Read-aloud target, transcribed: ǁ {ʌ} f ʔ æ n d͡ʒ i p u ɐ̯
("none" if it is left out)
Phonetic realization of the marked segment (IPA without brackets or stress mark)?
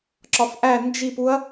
ɒ